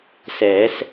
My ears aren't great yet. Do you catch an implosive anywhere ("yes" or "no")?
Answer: no